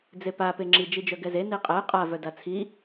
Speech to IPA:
d͡z e p a p e ŋ͡ǁ i d͡ʒ i d͡ʒ œ ɡ ɛ z e n i qʼ ɛ qʼ a v œ d a t͡sʰ i

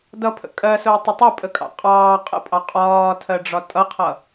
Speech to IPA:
d ʌ pʰ ə̰ kʼ ɜ s ʊː tˤ ə tˤ ɑ pʼ ə kʼ ɑ̰ qʼ ɑː qʼ ə̰ pʼ ɑ qʼ ɒː tʰ ɜ ɖ͡ʐ ɒ tʼ ʌ qʰ ʌ

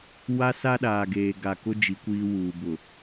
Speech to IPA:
w a˦ s a˦ ɗ aː˨ ɡ eː˨ ɡ a˨ k ʊ˦ d͡ʒ i˨˦ kʷ iː˦ w uː˨ b ʊ˨

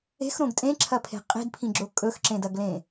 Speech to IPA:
e̤ x ɾ õ ɡ tʼ ẽ ǁʰ ɐ pʰ e̤ qʼ i̤ d pʰ ĩ ɡ͡ǁ o kʼ ɵ x ǁ ẽ d ɐ ɡ l ẽ

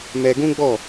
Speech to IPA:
m ɛ˧ ɡ ũ˦ ɡ͡b ɔ˦˨

